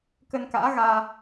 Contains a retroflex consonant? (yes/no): no